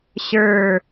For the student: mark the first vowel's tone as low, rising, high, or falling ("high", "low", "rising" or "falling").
low